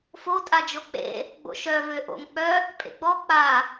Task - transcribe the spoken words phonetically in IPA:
f o tʼ a d͡ʒ o k͡p ḛ | ɡ͡b o̰ ʃ œ v ø ʔ o̰ ŋ k͡p œ | pʼ ḛ ɡ͡b ɔ k͡p a

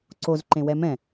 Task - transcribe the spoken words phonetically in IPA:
ǀ o z ǃ ẽ w ɛ m ɛ̃

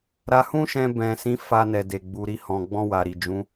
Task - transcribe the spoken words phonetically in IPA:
ɾ a˧ h ũ˦ ʃ ɛ̃˧ b ɛ̃˨ s ĩ˨˦ f a˧ n ɛ˨ d e˨ ɡ͡b u˨ ɾ i˧ h ɔ̃˨ ɡ͡b ɔ̃˧ w a˨ ɾ i˨ d͡ʒ ũ˨˦

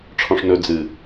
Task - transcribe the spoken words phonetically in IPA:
ʈ͡ʂʰ ɔ̃ ʂ n ɵ d͡z ɨ

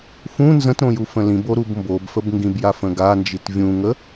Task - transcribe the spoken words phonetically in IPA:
f ũ n z ə̃ t ɾ õ j u f ə̃ l ĩ b o ɾ u b m b o b f ə b ŋ ɡ ĩ b j a f ə̃ ɡ a n d͡ʒ i t vʲ ũ ŋ ə

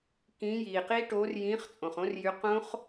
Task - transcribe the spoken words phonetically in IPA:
k ĩː˨˥ j iː˩ q i˦˥ ʈ oː˨˥ r j ĩː˨˥ χ t͡sʼ õ˩ χ õ˦˥ r j y˨˥ q õ˦˥ χ

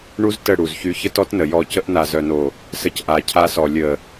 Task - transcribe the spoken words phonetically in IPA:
ɳ u˦ z t ə˦˨ ɽ u˨ z ç y˧ ç ə˦ t ɔ˦ t n ə˨ j ɔ˦˨ c ə˦ ʔ n a˨ z œ˨ n o˨ | s ə˧ c ʔ a˨ cʰ a˧ s ɔ˨ lʲ ə˨

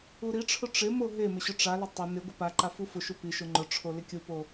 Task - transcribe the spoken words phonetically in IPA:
u ɾ i ʈ͡ʂʰ ʊ ʈ͡ʂ ɪ m o ɦ e m ɪ ɕ ʊ ʈ͡ʂ a l ɪ tˤ ʊ n ɪ ɡʷ ɪ p a ǃ a f u f ʊ ʃ u p i ʃ ʊ ŋ͡ǃ ʊ ʈ͡ʂʰ o l ɪ kʲ u p o

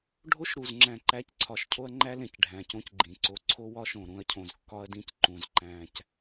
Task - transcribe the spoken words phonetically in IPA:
ɖʱ o˦ ʃ ɾ u˨ z ŋ͡ǁ æ̃˨ ǃ æ˨˦ c ǀʰ ɒ˨ ʃ cʰ o˦ ɐ̯ ŋ͡ǃ æ˦ l ẽ˨ c ɖʱ æ̃˨ c õ˦ c ɡ͡ǃ ĩ˨ ǀ o˨ ǀʰ o˦ w ɒ˦ ʃ õ˨ ɾ ũ˦ ɐ̯ cʰ õ˨ z kː ɒ˦ ɐ̯ d ĩ˦ c ǃ ũ˨ z ǃ æ̃˦ c

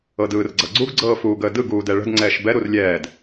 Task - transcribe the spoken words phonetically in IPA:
ɤ d ɯː r ɡ͡ǀ ʌ ɡ͡ǀ u ɡ ɡ͡ǀ ɤː f uː ɡ əː d ɯ ɡ uː d ɛ ɭ ə̤ d ŋ͡ǀ ɛː ʃ b ɛ ɾ u r lʲ ɛː d

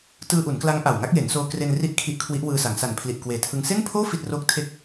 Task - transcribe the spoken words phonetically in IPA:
t ɯː˧ ʔ u˩˦ n k l a˦˥ ŋ ʔ a˨˩ w ŋ a˦˥ k̚ j e˩˦ n s oː˧ k r e˧ n r i˦˥ ʔ kʰ i˦˥ ʔ kʰ w i˦˥ ʔ w ɯː˧ s a˩˦ ŋ s a˨˩ n pʰ l i˨˩ ʔ k w eː˨˩ tʰ ɯ˧ ŋ s e˥˩ n pʰ oː˥˩ f i˥˩ t̚ r oː˥˩ k̚ tʰ e˥˩ k̚

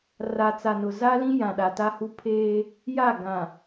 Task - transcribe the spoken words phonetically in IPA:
r a˨ t͡s a˨ n ʊ˨ z a˦ l ĩ˦ j ã˨ ɗ a˨ t a˦ h u˦ pʰ eː˦ | j a˦˨ ɡ ã˨

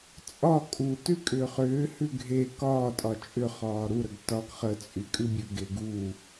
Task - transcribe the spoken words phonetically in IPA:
t͡sʼ ɒ kʼ u t ʉ kʼ ʏː χ ʏː h ʉ ɡʱ e k ɒː tʼ ɒ t͡ʃʼ ʏ χ ɒː ɾ u ɾ ə ɡ t ɒ ɡ χ ə t͡sʼ y kʼ ʉ bʲ ʉ ɡ e ɡ u

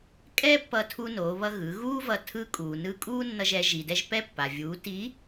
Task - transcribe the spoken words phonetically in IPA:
kʼ ɛ˥ pː ʌ˧ tʰ u˧ n o˩˧ β ʌ˧ ɣ ɯ˩˧ ɣ uː˥ v ʌ˧ tʰ ɯ˧˥ kʼ uː˩ n ɯː˧ kʼ uː˥ nː ʌ˧ ʒ ɛ˩˧ ʒ i˩ d ɛ˧ ʒ p ɛ˧ pː a˩ vʲ uː˩˧ t i˧˥

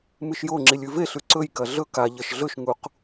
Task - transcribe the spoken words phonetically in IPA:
m ɨ ʃ j o ŋ͡ǁ i lʲ ʉ v e ɬ ʉ ǀ ɵ j k ɐ ɮ ɵ k a ʎ ɐ ʃ ɮ ɵ ʃ ŋ u q

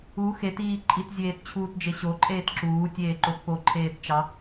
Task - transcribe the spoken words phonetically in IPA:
u x e t iː ǃʼ i t zʲ eː t t͡ɕʰ uː t d͡ʒ e ɕ o ǃʼ eː t ǁ uː tʲ eː ǃ o t p o ǃʰ eː t t͡ʃ ɑ

